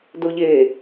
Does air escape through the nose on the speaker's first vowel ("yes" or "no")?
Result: no